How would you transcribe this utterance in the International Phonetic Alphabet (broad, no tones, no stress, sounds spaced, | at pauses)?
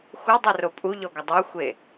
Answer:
x u dˤ o r o pʼ u ʎ ɔ ɡʷ a dˤ o xʷ e